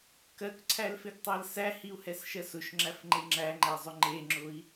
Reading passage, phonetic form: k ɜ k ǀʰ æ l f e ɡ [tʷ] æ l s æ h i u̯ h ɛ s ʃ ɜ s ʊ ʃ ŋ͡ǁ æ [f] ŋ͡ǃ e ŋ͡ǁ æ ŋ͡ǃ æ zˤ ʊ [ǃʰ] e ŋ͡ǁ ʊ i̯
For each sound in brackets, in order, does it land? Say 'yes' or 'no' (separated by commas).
no, yes, no